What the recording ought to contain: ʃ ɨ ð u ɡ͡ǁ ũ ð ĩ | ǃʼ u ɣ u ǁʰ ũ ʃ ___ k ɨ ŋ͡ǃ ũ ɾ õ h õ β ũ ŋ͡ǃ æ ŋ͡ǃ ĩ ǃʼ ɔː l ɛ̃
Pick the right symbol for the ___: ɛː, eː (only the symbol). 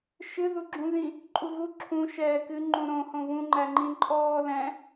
ɛː